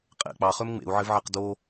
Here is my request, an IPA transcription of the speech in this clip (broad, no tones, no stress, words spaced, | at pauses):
qʼḛ k͡pɑχøm ŋ͡mḛu̯ʕɪvʕeq do